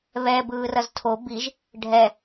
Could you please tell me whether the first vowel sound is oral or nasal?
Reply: oral